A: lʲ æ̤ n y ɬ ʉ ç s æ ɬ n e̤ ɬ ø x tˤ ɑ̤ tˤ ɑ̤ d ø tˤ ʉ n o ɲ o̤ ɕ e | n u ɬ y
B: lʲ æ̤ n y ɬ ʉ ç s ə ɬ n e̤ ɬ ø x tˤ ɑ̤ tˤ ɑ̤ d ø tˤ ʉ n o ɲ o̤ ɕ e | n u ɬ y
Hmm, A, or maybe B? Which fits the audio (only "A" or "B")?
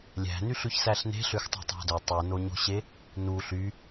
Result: A